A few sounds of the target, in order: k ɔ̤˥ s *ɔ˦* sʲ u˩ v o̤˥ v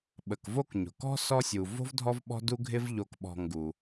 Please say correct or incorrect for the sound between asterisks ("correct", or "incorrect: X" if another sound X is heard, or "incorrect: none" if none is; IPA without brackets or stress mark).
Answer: correct